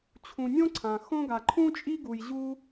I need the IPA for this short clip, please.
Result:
t͡ɕʰ ũ˧ nʲ õ˥ ǀʰ ã˧ x õ˥ ɡ a˧ ǃʰ ũ˥ t͡ʃʼ i˥ ɡ u˧ j ʑ u˥

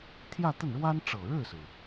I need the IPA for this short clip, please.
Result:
t̪ʰ j ä˥˧ t̪ ə˥˩ n ɻ w a˥ n ʈ͡ʂ ɤ˨˩ ɻ ɻ̩˥˩ s ɹ̩˩

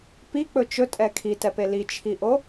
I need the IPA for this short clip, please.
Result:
p i k͡p ɵ t͡ʃ ɵ tʼ ɛ kʰ i t ɛ p e l i t͡ʃʰ i ʔ o

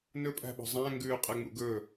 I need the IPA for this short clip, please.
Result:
n ɵ pʼ æ̤ ɓ ɔ̤ zˤ æ̃ ŋ ɡ ʉː qʼ ɛ ŋ͡m ṵ ɡ ɵ

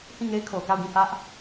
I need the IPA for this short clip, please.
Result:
h ĩ˦˨ ŋ e˦ ɪ̯ kʰ o˨ k a˦˨ ʊ̯ ɡ ĩ˦˨ h ä˦ ʔ

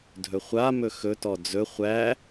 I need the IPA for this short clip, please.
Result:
dʱ ɵ χʷ a m ɵ x ɵ t ɔ d͡z ɵ χʷ æ

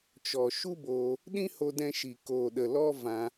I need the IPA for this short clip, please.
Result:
t͡ʃ ɔ˨ ʃ u˦ b oː˧ | ɗ ĩ˦ h o˧ d ɛ̃˧ ʃ i˨ k oː˨ ɗ ə˨ l ɔ˧ v ã˧

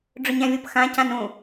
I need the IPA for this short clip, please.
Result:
ɖ͡ʐ ʊ ɲ æ̃ vʲ ʊ p x ã c ã n ũ

